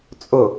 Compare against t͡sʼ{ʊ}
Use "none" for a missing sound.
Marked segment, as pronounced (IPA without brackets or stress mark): ʊ